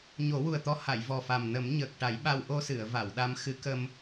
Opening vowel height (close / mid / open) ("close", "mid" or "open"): mid